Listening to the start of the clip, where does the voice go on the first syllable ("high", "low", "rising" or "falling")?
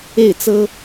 falling